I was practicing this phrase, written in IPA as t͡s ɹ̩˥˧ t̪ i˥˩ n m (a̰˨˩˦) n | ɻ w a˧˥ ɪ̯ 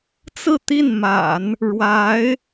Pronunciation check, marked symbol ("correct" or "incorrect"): correct